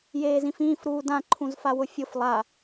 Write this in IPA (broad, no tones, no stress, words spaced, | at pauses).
jeːzĩfĩːf ɾuːdã ǃʰũzfawʊfʲʊf lˠa